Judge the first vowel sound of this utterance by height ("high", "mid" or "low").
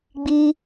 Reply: high